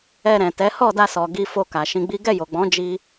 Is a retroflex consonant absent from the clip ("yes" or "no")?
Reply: yes